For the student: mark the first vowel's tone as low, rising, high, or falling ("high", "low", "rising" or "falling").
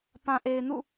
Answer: low